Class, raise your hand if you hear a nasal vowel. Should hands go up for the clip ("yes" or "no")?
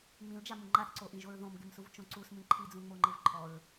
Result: yes